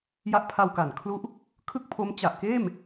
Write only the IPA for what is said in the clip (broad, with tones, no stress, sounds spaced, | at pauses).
j a˦˥ ʔ pʰ a˧ w k a˩˦ n kʰ l u˦˥ ʔ | kʰ ɯ˥˩ k̚ pʰ o˦˥ m t͡ɕ a˨˩ ʔ k eː˥˩ m